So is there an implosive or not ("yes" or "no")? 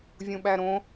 yes